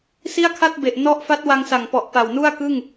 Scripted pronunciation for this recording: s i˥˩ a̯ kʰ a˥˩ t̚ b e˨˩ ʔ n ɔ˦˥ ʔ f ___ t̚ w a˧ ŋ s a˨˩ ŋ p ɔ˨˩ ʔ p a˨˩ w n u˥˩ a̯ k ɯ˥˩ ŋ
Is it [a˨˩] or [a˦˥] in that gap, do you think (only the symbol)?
a˦˥